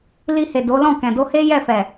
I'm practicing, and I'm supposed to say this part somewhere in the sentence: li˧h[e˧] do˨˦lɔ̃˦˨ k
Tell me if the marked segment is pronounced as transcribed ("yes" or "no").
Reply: no